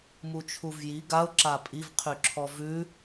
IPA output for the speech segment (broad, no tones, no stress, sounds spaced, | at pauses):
m u t͡ʃʰ u v j i ɡ a ʊ̯ ǁ a pʼ i v qʰ y ǁʰ ɔ v ʉ